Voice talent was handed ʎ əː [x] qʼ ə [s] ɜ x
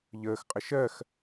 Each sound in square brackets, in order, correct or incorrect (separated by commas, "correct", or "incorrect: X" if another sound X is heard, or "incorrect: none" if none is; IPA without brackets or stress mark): correct, incorrect: ʃ